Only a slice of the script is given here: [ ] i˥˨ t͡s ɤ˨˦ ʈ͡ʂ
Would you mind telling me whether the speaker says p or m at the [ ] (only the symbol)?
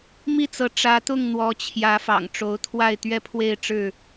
m